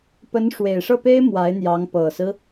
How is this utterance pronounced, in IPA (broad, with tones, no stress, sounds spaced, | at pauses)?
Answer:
p ə˧˥ n ʂ w e˨˩ ɪ̯ ʂ ɤ˥˩ p e˥ ɪ̯ m w a˧˥ ɪ̯ n̪ j ɑ˧˥ ŋ p ɤ˨˩ s ɹ̩˦